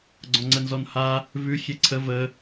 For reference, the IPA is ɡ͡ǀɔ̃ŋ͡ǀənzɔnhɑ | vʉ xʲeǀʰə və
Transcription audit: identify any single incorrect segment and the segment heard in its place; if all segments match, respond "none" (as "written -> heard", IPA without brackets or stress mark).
ɑ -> a